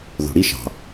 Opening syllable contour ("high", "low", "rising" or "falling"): low